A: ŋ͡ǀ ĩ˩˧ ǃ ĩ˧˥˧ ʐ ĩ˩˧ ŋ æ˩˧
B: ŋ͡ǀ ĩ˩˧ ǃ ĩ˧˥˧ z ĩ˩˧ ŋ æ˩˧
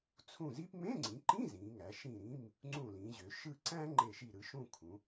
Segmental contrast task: B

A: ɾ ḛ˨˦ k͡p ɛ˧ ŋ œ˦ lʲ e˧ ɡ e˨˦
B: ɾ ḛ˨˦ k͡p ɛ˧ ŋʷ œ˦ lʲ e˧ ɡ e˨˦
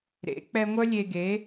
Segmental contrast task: B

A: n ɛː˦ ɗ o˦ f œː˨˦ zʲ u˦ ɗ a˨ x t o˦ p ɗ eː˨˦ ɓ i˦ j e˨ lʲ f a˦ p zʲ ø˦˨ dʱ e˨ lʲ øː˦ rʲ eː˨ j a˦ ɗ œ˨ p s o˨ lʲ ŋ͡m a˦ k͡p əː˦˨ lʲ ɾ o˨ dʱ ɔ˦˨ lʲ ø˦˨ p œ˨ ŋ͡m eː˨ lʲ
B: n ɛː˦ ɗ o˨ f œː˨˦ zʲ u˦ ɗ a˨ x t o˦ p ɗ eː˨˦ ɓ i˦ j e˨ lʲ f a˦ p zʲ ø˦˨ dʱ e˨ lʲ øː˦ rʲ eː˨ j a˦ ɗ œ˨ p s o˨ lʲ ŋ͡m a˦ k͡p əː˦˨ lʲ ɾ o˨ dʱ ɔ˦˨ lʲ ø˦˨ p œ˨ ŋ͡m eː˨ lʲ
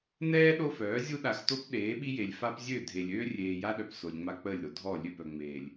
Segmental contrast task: A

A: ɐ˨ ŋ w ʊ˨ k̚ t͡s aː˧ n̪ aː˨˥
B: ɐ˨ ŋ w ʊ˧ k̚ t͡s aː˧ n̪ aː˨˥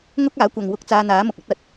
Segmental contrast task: B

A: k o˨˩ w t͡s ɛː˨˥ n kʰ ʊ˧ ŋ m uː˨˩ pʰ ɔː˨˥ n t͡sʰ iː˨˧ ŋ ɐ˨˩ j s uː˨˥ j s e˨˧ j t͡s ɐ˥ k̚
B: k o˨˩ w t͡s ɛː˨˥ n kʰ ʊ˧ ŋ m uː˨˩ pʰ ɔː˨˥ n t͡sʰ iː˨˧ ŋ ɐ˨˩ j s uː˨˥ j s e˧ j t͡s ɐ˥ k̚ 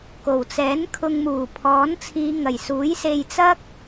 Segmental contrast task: B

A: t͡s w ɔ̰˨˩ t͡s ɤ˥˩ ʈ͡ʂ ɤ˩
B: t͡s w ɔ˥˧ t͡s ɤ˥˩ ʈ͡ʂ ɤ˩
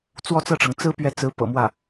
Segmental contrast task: B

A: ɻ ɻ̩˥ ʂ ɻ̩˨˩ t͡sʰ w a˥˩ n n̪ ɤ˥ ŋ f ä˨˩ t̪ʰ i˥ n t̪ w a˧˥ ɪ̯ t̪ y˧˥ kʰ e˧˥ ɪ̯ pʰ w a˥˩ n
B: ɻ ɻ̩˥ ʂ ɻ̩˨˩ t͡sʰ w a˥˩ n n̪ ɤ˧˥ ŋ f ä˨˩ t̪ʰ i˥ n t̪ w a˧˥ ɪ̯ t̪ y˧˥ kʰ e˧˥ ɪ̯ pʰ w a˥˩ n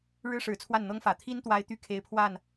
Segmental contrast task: A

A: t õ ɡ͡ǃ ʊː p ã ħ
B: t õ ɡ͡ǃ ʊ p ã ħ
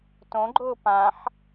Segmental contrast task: A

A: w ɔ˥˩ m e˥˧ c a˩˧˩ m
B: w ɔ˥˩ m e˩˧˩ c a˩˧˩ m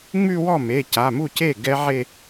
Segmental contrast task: B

